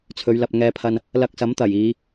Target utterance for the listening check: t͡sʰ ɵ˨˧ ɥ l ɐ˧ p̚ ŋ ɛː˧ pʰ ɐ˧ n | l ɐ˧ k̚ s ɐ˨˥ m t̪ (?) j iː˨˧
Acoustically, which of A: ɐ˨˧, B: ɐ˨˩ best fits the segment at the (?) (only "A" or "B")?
B